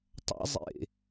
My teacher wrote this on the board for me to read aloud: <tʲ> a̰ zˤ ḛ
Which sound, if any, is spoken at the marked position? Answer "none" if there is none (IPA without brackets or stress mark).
tˤ